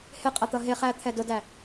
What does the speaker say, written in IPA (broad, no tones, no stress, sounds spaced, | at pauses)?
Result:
h ɪ qʼ ʌ t̪ ʌ ɦ ɪ χ æ t̪ʰ ɛ d ʊ d æ